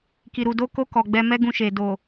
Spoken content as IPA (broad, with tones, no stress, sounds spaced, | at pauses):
k i˨ ɾ u˨ d o˧ k o˧ k ɔ˨ ɡ͡b ɛ˧ m ɛ˦ ɡ ũ˧ ʃ e˨ d o˨